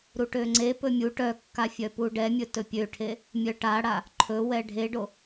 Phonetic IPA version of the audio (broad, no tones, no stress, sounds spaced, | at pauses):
ɾ u ʈ ø ŋ͡ǀ e p ɵ mʲ u ʈ œ kː a fʲ œ p u ɖ ɛ mʲ ɵ t ɵ pʲ ø ʈʰ e | mʲ œ ʈ a ɽ a | ǃʰ ɵ w ɛ ɖʱ e ɖ o